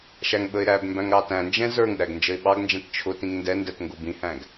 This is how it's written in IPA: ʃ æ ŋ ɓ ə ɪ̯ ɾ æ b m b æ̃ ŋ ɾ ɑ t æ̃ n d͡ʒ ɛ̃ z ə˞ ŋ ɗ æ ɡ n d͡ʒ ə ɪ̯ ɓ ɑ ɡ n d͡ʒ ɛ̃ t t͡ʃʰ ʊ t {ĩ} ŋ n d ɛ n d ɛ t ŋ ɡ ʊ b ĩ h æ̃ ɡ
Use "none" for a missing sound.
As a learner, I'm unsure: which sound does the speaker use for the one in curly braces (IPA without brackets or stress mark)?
ĩ